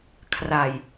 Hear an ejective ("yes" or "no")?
no